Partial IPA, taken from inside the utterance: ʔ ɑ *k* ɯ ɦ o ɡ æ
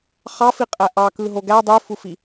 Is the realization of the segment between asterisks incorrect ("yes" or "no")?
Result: no